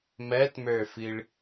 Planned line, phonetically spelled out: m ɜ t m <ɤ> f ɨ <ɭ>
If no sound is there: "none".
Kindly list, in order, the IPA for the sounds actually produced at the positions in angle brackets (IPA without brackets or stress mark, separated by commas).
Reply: ə˞, ɭ